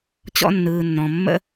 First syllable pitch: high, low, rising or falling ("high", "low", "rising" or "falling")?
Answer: high